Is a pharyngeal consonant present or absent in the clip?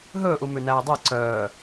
absent